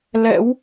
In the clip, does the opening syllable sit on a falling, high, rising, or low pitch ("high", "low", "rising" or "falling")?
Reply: rising